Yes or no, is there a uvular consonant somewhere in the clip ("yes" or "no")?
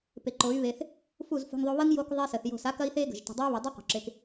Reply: yes